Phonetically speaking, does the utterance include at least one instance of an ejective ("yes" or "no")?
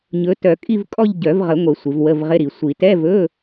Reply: yes